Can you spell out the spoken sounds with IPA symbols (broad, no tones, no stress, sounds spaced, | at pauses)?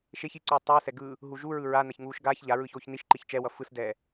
ʃ e ç i ǀ uː tˤ ɯː s ɛ ɡ ɯː | ɦ u ʒ u ɹ ɯ ɹ a n a ç ŋ uː ʃ ɡ aː ç ʎ a ɹ ɯː ç oː ç n i ʃ ǃ i ç t͡ʃ ɛ w ʌ f ɯ s d ɛː